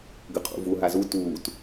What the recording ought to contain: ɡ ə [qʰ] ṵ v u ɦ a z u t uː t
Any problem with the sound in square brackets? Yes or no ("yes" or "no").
no